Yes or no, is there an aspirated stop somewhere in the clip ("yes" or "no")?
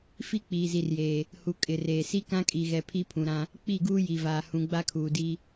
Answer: yes